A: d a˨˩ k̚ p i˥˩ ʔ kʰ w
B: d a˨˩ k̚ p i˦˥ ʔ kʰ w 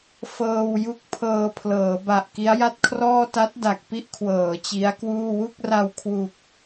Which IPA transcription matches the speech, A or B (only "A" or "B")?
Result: B